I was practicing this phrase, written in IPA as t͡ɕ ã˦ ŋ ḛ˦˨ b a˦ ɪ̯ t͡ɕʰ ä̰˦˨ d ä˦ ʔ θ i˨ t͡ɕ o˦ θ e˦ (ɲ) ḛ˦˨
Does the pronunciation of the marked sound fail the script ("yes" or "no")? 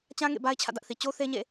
no